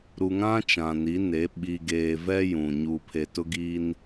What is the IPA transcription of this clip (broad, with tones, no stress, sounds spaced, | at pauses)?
ɾ u˨ ŋ ã˦ t͡ʃ ã˨ n i˨˦ n e˨˦ ɓ i˨ ɡ eː˨ v ɛ˦ j ũ˨ ɲ u˨ pʰ e˨ t ʊ˦ ɡ i˦ n